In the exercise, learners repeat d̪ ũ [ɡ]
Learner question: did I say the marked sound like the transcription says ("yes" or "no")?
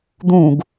yes